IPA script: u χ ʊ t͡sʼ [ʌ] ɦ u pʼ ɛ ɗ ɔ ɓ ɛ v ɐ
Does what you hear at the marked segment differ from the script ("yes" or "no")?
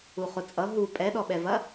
no